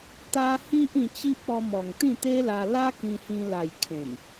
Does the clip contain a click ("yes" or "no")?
no